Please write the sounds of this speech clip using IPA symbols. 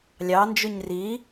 lʲ ɑ n d͡ʒ ʉ ɲ r i

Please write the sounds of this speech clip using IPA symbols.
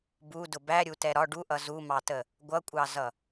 b u d ʊ b æ ɾʲ u t ɛ ɾ ɒ ɖ u ʔ ʌ z u m ɑ t ə | ɡʷ ʌ kʷʼ ɑ z ʌ

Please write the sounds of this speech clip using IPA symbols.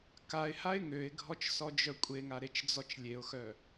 k a ɪ̯ h a ɪ̯ ŋ ø ɪ̯ ɡʱ ɔ t͡ʃ s ɔ d͡ʒ œ kʷʼ e ŋ a ɾ e t͡ʃ d͡z ɔ t͡ʃ lʲ e ʊ̯ x œ

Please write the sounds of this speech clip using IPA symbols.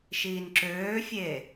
ʃ iː n ǁ øː fʲ e

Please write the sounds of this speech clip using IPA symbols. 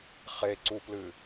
χ e ǀ u p l ɨ

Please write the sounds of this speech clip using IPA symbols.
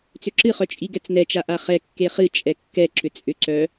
t͡s ʏ ǁ ɨ χ œ t͡ʃʼ i ɡ ɛ t͡s n ɛ t͡ʃ a ʔ a χ ɛ kː e χ ɨ t͡ʃʼ ɛ kː ɛ ǁ ʏ t͡sʼ ʏ ǀ œ

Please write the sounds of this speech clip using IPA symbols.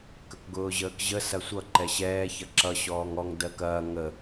k ə k ɡ ʊː ʑ əː k ʑ ə s ɐ sʷ ʌ ǃ ɛ ɕ ɛː ç ɐ ǁ ʌ ɕ ɔː ŋ ɔ ŋ d ɜ k ɐː ŋ ə

